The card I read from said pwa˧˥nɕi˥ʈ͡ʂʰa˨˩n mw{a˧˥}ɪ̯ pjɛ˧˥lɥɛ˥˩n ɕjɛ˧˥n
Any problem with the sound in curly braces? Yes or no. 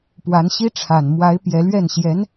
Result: no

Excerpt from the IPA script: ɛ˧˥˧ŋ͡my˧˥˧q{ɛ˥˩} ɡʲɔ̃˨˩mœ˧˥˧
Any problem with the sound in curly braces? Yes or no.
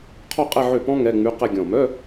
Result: yes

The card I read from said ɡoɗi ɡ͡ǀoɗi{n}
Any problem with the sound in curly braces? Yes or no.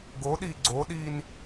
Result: no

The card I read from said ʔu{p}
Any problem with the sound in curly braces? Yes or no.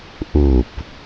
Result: no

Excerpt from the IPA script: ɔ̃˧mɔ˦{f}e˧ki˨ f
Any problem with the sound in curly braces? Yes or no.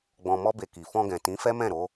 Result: yes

